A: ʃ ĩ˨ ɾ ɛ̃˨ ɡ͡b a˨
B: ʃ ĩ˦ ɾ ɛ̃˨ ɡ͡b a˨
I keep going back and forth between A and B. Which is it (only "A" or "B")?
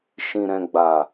A